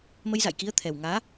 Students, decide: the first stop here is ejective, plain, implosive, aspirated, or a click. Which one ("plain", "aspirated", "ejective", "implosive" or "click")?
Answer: plain